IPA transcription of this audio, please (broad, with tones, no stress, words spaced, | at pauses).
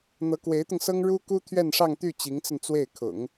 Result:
n̪ɤ˧˥kwe˧˥ɪ̯t̪ʊ˧ŋsɤ˥ŋ ɻu˥ku˥ t̪ʰɥɛ˥˧nʂɑ˥˧ŋt̪y˥˩ t͡ɕi˧˥ŋt͡sə˧nt͡swe˥˩ɪ̯ kʰʊ̰˨˩˦ŋ